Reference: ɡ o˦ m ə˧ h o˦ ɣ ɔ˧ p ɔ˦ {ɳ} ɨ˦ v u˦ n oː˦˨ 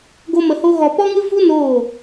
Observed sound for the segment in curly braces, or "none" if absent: ŋ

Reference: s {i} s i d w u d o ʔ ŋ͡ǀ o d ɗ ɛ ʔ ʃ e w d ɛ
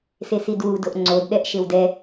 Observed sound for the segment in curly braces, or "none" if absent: e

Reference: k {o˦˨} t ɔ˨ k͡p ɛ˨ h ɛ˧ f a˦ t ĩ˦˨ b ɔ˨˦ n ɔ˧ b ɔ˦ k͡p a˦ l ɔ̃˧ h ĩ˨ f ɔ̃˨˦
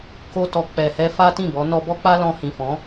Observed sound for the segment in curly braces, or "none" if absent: o˧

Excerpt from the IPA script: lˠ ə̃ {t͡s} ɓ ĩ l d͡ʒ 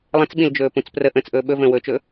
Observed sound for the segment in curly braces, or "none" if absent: t͡s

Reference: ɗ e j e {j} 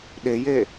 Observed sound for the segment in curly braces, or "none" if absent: none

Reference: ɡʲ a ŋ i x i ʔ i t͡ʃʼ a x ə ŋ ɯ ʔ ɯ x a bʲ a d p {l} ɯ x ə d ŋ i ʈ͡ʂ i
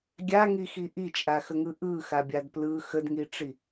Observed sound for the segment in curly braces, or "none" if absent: l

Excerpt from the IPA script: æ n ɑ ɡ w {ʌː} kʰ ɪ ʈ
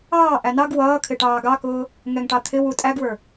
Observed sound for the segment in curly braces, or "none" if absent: ʌː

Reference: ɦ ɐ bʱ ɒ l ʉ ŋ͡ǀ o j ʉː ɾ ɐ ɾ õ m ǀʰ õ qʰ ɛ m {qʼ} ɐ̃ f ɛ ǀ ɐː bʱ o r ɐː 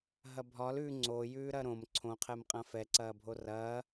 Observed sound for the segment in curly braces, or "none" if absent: qʼ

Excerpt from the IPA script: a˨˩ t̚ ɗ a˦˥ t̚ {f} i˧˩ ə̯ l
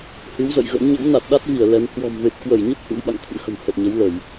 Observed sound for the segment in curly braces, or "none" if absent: v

